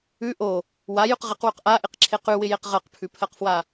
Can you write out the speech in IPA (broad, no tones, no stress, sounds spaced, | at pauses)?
ʉ ʔ o | w a j ʉ q ʁ ɪ q w ʉ q ʔ a ʔ ɪ q ǁʰ e q ʉ w ɪ j e q ʁ ɜ q pʰ ʉ pʰ ɜ q f w a